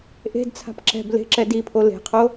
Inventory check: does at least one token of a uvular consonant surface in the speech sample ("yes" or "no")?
yes